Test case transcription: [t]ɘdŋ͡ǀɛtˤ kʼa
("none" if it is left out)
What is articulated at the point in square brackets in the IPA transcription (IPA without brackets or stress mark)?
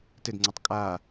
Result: t